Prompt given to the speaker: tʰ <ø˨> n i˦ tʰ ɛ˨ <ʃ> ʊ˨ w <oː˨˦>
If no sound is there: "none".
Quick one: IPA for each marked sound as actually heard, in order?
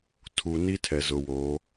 u˨, z, oː˨˦

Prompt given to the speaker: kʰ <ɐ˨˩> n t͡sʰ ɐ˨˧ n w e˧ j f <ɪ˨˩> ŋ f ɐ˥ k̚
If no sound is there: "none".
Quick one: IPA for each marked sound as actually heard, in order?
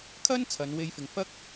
ɐ˥, ɪ˨

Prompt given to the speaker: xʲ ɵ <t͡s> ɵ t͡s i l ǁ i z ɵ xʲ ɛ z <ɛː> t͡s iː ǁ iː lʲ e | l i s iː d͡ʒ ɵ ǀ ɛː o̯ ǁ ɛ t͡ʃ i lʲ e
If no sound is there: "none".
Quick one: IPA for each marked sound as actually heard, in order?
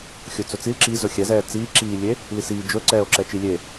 t͡s, ɛː

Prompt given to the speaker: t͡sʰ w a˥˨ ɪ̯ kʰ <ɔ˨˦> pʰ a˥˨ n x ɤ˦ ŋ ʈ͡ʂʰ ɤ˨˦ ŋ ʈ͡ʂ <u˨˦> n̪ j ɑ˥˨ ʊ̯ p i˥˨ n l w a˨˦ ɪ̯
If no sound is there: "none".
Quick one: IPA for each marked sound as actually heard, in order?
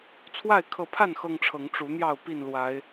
ɤ˨˦, u˨˦

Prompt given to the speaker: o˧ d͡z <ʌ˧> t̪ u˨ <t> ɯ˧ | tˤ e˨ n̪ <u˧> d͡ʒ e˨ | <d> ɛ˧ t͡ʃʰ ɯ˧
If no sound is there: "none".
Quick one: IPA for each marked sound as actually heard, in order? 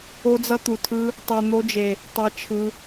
ʌ˧, tʰ, o˧, tˤ

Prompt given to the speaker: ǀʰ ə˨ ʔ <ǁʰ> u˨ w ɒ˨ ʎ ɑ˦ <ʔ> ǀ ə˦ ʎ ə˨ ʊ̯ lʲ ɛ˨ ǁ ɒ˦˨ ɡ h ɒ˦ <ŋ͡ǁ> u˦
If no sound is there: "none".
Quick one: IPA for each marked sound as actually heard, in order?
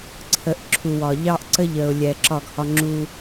ǁʰ, ʔ, ŋ͡ǁ

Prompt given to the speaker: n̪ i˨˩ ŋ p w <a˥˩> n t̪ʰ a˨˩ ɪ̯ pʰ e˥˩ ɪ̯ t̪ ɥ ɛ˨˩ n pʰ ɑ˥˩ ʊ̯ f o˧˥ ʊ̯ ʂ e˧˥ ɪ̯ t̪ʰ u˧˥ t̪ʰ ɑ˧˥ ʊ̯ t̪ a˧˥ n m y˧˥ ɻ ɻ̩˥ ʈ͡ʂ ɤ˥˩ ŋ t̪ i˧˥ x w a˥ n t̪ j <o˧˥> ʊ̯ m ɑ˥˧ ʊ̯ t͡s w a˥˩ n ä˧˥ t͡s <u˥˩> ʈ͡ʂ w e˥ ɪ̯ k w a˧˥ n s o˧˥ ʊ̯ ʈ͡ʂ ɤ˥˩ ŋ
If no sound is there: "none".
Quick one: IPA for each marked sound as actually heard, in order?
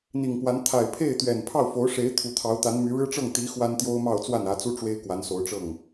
a˧˥, o˥, u˥

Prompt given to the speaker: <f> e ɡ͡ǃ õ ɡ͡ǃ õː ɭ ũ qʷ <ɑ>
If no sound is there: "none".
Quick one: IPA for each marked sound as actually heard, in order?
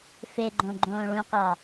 f, ɑ

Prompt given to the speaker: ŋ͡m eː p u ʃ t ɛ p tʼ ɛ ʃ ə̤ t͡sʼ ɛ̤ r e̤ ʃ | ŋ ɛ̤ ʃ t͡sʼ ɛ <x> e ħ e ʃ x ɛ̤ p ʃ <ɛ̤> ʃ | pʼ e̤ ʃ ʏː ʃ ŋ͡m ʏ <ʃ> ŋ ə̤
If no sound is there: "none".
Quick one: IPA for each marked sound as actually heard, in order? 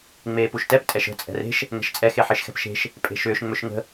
x, e̤, ʃ

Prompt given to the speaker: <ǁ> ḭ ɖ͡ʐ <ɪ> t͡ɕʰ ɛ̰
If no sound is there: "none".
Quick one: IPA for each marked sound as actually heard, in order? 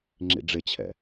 ŋ͡ǁ, ɪ

